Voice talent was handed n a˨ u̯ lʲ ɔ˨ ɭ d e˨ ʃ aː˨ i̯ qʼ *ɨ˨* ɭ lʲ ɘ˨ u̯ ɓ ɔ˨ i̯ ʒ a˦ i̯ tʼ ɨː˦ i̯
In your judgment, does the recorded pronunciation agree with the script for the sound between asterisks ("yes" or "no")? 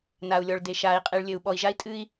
no